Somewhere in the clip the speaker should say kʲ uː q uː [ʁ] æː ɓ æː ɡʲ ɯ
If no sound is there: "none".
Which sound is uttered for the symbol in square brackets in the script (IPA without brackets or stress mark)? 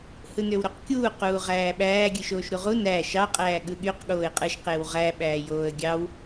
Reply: ʁ